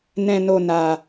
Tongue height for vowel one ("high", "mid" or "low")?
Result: mid